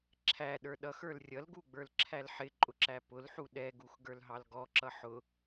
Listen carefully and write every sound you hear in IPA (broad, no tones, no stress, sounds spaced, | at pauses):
ǁʰ æ ɗ ə˞ ɗ ʌ x ə˞ l rʲ ʌ l ɡ u ɡ͡b ə˞ l ǁʰ æ l ħ ɪ ǃʼ ʊ ǁ æ p ʊ l ħ u ɗ ɛ ɡ u x ɡ ə˞ l ɦ ɑ l ɡ ɔ ǁ ʌ ħ ʊ